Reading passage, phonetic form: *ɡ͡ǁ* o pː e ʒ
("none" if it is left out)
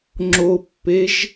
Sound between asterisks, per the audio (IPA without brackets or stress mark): ŋ͡ǁ